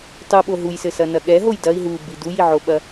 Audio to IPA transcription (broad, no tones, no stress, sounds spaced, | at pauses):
tˤ u ɓ o ɦ u j s ɘ s ɐ n ɐ ɠ ɛ ɦ o j d ɐ i̯ ɦ u b i d u j i ʕ o ɓ ɐ